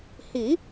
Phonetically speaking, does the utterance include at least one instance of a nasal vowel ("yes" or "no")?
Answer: no